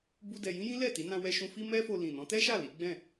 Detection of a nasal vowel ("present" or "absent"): present